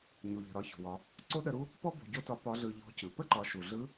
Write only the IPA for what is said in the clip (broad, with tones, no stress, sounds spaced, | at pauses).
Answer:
ɲ u˩ ʎ ə̤˩ ɾ ɒ˧ ç o̤˩ w ɒ˩˧ | ǀ o˥ ɗ ə˧ ɾ u˥ | p ɔ˥ b o̤˧ ɟ o˥ t ɒ˧˥ p ɒ˧˥ ɮ ɯ˧ ʎ ɔ̤˧˥ c ɯ˩ p ə˥ ǃ ɒ˩˧ ʃ u˩ ɮ ɯ˧˥